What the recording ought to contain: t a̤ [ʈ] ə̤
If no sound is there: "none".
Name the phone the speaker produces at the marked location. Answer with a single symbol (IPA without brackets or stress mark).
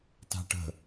ʈ